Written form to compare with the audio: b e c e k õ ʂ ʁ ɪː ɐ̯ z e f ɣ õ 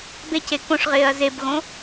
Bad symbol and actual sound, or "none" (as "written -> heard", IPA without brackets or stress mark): f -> b